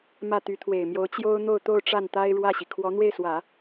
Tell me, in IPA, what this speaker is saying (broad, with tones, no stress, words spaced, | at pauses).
mä˥˩ t̪y˧˥t̪ʰwe˨˩ɪ̯mjo˧˥ʊ̯ t͡ɕjo˥ʊ̯n̪o˥˧ʊ̯t̪o˥˧ʊ̯ ʈ͡ʂa˥˩nt̪a˥ɪ̯ ɻwä˥˩ɕi˩ kʰwɔ˧˥ n̪we˥˩ɪ̯swä˨˩˦